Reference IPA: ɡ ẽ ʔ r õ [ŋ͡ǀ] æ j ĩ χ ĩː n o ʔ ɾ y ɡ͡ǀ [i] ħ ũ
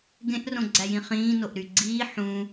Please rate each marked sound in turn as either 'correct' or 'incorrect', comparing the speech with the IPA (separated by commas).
incorrect, incorrect